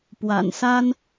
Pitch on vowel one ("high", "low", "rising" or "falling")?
low